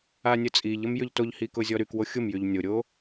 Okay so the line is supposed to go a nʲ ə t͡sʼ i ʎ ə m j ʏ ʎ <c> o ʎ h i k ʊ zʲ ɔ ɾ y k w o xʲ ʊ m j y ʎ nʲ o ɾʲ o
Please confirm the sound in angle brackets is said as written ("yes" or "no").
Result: no